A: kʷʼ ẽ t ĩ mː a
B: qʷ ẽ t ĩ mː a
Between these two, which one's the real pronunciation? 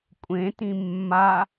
A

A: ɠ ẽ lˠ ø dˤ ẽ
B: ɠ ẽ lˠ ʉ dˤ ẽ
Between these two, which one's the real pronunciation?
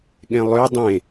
A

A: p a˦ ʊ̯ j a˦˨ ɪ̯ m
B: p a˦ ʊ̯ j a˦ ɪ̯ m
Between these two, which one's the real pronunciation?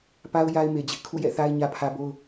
B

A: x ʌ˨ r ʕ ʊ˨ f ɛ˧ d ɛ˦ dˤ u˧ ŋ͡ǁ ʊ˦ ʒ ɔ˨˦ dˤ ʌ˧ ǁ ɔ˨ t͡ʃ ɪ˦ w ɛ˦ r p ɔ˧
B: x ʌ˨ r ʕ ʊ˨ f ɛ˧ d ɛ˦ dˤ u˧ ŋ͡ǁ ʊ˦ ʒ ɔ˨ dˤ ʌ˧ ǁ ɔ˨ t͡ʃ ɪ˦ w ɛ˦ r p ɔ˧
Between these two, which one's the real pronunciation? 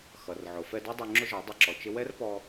A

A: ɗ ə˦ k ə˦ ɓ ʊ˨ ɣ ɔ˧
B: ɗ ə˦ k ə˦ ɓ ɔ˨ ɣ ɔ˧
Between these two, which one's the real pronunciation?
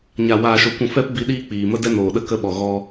B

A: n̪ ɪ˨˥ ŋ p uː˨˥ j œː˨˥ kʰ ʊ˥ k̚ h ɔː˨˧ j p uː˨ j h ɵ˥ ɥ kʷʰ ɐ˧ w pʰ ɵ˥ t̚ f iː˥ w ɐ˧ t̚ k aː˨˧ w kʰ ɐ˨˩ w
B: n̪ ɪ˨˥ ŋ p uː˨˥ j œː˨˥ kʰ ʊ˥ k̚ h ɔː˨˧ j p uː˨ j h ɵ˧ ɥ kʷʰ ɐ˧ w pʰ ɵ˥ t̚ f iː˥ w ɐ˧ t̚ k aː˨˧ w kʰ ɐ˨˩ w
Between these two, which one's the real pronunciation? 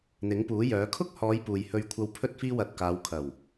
B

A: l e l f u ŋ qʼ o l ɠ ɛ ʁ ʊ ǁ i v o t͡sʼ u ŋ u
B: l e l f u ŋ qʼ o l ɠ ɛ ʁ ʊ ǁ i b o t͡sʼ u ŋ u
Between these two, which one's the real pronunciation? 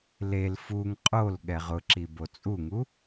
B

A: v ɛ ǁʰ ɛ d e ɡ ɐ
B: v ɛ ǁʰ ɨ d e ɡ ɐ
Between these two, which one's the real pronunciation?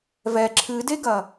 B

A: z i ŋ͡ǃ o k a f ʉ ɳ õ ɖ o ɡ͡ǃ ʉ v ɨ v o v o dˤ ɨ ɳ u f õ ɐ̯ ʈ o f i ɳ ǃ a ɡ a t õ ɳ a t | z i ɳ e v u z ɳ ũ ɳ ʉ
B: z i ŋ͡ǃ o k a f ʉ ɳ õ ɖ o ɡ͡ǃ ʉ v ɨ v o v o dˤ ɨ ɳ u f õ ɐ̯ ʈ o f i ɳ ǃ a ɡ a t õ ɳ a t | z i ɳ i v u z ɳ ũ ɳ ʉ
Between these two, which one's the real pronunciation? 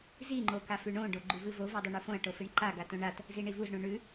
B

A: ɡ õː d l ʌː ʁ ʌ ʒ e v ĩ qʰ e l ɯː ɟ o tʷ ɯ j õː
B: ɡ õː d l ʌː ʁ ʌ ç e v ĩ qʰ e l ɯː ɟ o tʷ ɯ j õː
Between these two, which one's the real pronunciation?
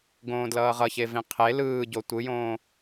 B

